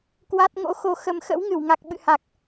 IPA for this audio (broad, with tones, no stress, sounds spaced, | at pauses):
k w a˦˥ t̚ ŋ o̰˧˥ x o˧ x ə˧ m x ə̰˧˥ w ŋ ɨ˧˩ w ŋ a˨˩ k̚ ɓ ɨ̰˧˨ h a˨˩ k̚